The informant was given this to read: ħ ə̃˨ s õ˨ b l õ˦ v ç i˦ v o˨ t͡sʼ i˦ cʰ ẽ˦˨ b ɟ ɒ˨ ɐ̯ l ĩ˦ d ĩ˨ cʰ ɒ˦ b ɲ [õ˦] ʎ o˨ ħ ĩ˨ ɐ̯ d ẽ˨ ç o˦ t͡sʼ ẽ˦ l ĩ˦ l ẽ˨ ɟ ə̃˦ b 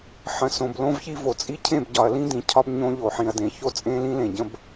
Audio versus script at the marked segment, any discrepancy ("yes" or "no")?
no